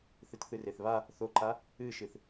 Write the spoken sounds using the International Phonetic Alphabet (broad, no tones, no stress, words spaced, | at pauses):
θɨtθɨreθβa | θoǃa | ɨʃɨθ